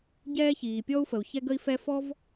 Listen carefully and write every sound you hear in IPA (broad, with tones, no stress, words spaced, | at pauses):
ɟɛː˥çiː˩pʲɔ˥u̯fə˩u̯ çɛ˥ɡə˥i̯fɛ˥ fɔ˥v